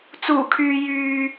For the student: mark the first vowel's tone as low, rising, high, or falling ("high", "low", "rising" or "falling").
low